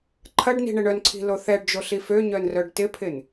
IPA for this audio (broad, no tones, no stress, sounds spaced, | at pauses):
ǃʰ ɐ ɖ n i̤ ɳ ɪ ɳ œ n ǀʰ i̤ l o θ ɛ ɖ d͡ʒ o ɬ i f ø ɲ œ n r œ ɖ t ɪ pʰ ɪ n